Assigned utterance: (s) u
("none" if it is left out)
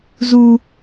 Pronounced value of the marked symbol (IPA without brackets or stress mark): z